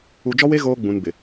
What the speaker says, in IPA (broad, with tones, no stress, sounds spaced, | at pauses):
u˨ d͡ʒ ɔ˦ w e˦ ɣ oː˦ ɡ͡b ũ˨ n b ɪ˨